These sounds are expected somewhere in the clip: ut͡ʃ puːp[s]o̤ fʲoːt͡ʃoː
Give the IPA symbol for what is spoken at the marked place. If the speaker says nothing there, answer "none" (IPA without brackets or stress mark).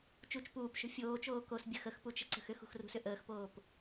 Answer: ʃ